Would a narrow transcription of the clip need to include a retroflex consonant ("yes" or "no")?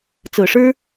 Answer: yes